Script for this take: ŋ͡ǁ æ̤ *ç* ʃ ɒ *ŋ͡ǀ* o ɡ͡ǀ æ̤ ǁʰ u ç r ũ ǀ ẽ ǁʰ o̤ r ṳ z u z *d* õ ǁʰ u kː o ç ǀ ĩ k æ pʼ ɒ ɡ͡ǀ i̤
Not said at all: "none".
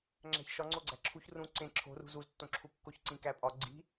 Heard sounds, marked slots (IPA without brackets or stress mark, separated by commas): ç, ŋ͡ǀ, tː